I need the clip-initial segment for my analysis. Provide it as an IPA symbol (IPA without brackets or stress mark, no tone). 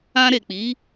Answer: ã